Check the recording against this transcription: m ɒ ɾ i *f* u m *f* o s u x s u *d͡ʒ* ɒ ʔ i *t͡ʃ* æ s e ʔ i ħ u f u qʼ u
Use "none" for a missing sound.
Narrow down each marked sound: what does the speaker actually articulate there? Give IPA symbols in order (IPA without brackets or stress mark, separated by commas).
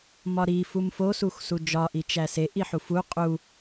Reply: f, f, d͡ʒ, t͡ʃ